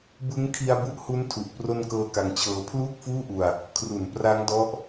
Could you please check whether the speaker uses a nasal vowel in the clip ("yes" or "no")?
no